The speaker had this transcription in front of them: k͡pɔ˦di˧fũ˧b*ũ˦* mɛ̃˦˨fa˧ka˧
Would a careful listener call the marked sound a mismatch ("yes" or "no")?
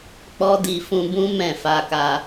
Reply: no